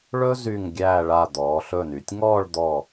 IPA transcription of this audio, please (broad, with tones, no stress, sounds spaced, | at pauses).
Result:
ɭ ɵ˥ z y˧˩ ŋ ɡʲ æː˧˩ ɭ a˧˩ d̪ ɔː˩˧ ɬ ɵ˧˩ n y˩˧ tʲ ŋ ɔː˥˧ ɭ d̪ ɔ˧˩